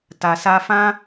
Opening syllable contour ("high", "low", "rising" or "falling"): low